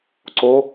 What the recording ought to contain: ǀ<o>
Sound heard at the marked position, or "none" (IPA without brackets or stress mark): o